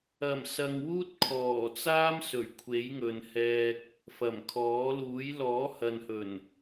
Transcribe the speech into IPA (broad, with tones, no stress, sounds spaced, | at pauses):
ɐ˨˩ m s ɐ˨ ŋ w uː˥ t̚ kʰ ɔː˨˩ t͡s aː˥ m s ɵ˨˩ ɥ kʷʰ e˨˥ j ŋ ɵ˨ n h ɛː˧ k̚ | f ɐ˨˩ m kʰ ɔː˨˥ l uː˨˥ j l ɔː˨˥ h ɐ˨ n h ɵ˨˩ n